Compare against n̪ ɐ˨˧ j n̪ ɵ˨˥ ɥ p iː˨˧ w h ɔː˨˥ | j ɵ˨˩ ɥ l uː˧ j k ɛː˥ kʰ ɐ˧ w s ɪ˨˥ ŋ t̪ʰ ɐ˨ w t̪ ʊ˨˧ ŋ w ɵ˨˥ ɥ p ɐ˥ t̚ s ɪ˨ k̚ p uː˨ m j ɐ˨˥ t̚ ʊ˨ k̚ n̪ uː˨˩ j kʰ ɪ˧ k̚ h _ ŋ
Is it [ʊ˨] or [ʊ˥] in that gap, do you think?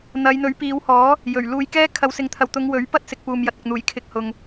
ʊ˨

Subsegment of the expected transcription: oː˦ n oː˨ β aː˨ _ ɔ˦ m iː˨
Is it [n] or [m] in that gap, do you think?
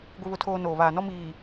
n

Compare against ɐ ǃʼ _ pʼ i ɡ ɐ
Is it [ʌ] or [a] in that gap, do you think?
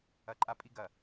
a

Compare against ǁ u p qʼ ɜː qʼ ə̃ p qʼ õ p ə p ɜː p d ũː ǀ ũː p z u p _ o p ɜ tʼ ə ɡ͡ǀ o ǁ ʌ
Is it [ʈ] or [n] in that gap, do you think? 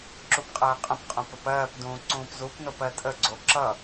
n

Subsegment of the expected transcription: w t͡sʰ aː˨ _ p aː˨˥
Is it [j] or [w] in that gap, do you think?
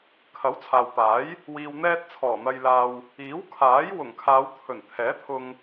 w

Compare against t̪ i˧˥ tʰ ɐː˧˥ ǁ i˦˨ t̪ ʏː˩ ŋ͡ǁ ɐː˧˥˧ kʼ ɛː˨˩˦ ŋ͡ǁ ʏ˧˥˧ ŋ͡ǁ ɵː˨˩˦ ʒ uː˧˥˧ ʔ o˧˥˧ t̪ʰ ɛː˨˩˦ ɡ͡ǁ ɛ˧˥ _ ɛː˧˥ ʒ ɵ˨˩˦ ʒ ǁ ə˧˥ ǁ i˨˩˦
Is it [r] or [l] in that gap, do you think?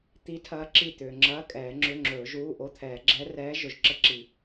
r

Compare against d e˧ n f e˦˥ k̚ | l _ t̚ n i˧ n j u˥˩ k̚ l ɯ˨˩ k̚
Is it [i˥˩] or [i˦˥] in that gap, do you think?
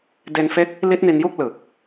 i˦˥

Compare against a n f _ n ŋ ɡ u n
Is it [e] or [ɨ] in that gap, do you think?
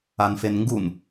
e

